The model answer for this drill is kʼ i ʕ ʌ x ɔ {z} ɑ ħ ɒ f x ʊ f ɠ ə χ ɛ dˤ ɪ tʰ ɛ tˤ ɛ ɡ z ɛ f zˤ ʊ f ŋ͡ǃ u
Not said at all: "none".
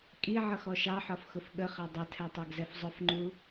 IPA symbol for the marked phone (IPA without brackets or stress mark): ʃ